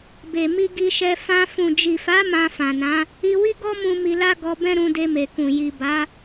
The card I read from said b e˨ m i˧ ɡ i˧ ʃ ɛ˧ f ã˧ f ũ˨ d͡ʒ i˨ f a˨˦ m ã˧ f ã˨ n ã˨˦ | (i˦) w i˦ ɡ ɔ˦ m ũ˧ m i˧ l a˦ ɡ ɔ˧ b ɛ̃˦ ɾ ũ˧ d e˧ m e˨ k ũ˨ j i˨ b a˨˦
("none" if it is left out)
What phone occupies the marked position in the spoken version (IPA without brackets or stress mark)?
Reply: i˧